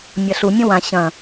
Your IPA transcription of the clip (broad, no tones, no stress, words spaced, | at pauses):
mʲɐɬu mʲõwã ɕɐ̃